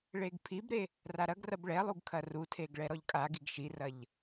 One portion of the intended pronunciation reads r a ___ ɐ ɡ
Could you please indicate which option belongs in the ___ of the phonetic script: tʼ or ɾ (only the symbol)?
ɾ